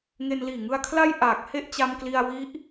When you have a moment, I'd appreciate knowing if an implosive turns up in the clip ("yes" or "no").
no